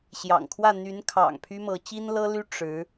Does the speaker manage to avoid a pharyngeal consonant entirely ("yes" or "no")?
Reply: yes